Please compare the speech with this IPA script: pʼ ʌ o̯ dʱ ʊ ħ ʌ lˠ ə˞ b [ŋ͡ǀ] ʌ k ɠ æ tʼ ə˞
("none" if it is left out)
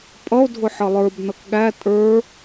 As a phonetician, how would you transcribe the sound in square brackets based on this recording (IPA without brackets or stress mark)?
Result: n